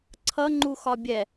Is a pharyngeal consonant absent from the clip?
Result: yes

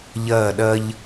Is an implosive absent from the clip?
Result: no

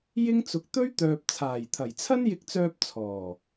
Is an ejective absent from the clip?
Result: yes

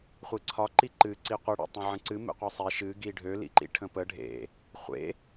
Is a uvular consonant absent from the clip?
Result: no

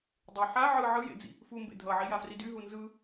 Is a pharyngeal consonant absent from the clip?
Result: no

